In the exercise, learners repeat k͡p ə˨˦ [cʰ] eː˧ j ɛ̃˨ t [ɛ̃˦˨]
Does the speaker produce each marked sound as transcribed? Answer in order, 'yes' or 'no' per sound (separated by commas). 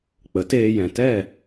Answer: no, no